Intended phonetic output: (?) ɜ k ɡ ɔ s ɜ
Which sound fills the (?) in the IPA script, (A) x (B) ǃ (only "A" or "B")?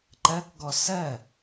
B